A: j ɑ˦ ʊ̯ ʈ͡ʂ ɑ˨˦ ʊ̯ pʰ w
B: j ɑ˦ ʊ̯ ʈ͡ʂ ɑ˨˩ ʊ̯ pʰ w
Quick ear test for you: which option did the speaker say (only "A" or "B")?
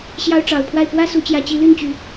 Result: B